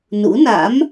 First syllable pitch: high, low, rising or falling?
rising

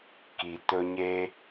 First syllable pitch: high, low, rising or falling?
low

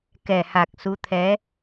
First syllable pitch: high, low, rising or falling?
low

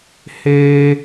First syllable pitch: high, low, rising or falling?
high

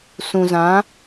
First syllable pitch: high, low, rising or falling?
low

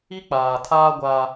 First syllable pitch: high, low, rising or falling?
high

